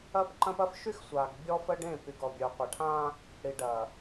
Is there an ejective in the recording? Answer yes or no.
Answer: no